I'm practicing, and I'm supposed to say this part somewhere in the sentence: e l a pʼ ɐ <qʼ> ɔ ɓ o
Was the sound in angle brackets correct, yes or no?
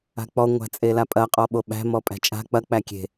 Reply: yes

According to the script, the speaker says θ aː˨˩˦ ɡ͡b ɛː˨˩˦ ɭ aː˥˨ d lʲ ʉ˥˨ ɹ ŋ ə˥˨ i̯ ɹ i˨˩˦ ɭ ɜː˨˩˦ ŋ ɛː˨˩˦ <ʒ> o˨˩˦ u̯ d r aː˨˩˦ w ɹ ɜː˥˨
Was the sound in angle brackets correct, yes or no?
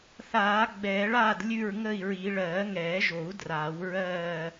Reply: yes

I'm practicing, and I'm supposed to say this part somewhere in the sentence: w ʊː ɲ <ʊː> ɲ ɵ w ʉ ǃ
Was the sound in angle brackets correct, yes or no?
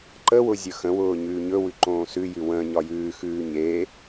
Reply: no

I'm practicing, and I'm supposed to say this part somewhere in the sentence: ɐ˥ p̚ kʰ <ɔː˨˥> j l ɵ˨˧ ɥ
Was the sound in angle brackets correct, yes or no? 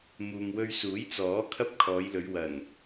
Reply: no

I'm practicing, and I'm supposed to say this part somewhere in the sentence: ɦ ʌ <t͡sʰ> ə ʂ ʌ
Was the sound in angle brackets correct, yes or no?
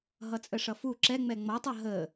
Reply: no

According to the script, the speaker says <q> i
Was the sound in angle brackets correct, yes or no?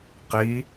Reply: yes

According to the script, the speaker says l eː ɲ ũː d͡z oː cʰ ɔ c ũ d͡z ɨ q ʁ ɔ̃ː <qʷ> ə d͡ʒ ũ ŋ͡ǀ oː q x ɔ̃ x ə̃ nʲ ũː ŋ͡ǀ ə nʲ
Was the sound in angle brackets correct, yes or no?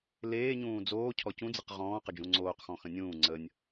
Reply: no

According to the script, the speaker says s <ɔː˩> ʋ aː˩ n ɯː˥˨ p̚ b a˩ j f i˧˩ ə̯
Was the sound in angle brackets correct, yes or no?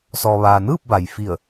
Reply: yes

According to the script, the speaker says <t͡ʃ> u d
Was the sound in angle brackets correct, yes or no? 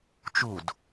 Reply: yes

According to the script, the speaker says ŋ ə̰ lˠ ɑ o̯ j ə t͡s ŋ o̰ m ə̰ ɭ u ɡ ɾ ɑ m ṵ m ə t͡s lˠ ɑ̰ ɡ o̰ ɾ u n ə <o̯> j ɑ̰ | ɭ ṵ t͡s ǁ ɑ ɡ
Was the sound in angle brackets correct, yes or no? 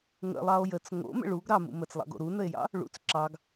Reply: no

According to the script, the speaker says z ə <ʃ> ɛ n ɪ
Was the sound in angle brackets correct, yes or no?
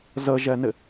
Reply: no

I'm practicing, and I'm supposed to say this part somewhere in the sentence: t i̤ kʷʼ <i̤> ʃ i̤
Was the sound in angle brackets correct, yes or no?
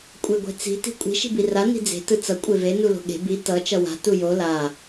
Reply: yes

